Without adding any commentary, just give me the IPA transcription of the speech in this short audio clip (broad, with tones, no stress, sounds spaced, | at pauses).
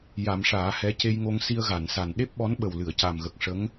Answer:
j a˨˩˦ m ʂ aː˨˩˦ h ɛ˧˥ c e˧ j ŋ o˧ ŋ s i˧ ə̯ ɣ a˨˩˨ n s a˨˩ n ɗ e˦˥ p̚ ɓ ɔ˧˥ n ɓ ə˨˩ w l ɨ˨˩˨ ə̯ c a˨˩ m ɣ ə˨˩ k̚ ʂ ə˧˥ ŋ